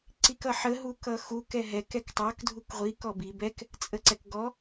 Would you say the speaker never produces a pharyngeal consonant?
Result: no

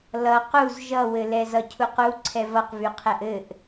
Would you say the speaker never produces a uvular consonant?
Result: no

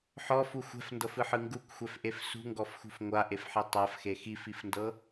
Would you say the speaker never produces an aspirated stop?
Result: yes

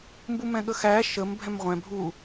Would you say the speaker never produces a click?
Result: yes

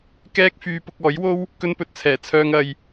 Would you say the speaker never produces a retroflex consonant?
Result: yes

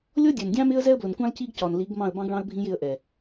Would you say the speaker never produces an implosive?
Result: yes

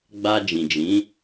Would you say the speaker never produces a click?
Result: yes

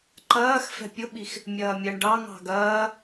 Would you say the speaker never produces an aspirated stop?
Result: yes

